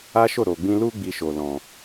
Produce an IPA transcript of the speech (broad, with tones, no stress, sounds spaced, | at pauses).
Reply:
a˦ ʃ o˦˨ ɾ o˨ ɡ͡b ĩ˧ l u˦ ɡ͡b i˧ ʃ o˨ l ɔ̃˨